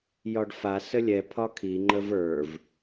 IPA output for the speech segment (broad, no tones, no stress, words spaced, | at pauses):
jɒɖfa səlʲɛ pʰɒkʰi ŋ͡ǃəvə˞v